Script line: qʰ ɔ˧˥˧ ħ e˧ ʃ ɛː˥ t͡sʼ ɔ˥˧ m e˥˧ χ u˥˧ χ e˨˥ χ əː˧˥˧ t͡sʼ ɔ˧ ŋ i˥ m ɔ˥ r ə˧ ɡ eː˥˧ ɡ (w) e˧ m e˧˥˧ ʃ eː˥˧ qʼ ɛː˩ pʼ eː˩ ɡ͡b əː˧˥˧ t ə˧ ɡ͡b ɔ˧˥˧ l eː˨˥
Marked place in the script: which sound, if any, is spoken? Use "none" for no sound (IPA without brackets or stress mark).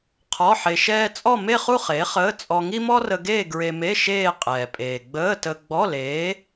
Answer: ɹ